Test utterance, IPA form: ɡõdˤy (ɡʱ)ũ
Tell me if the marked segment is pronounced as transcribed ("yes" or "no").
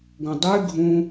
yes